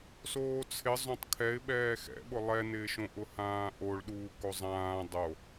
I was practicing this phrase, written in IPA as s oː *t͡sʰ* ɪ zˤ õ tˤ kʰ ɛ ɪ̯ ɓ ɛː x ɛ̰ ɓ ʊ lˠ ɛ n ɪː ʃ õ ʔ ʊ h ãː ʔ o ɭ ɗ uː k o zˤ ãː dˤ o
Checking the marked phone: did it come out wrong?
no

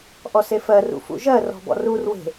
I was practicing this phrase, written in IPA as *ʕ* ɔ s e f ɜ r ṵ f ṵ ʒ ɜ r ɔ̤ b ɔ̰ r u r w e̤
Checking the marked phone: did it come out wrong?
yes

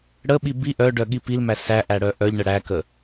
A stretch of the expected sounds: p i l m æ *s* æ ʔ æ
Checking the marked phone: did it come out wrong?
no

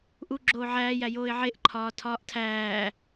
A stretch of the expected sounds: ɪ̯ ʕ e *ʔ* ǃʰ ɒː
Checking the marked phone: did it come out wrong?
no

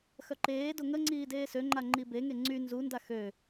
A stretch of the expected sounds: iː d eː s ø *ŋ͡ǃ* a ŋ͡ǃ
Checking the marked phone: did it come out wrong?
no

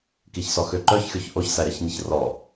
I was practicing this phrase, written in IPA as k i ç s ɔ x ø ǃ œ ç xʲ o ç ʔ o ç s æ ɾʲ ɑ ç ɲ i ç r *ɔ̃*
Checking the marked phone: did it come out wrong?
yes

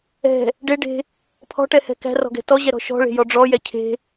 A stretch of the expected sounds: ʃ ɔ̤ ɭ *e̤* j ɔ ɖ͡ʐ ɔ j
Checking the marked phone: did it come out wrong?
no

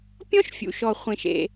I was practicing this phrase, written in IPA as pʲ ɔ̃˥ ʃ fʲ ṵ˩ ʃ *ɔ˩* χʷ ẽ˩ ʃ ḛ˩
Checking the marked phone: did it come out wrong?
no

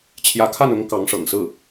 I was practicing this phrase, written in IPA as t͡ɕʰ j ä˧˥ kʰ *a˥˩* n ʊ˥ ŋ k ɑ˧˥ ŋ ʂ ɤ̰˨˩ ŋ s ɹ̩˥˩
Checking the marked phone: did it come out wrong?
no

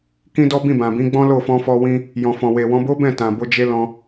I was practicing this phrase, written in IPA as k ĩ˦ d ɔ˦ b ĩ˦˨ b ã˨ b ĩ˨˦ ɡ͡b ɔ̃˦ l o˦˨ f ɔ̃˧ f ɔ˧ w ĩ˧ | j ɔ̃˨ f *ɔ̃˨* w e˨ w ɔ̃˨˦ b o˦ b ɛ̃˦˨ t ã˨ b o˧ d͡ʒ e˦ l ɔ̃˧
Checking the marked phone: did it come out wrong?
no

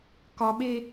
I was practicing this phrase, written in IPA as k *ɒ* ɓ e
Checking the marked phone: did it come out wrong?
no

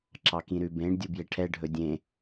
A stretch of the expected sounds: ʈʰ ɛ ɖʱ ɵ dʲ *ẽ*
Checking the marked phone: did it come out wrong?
no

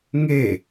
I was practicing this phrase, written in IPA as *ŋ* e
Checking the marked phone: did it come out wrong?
no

